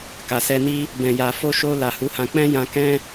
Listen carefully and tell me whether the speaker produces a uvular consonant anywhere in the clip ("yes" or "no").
no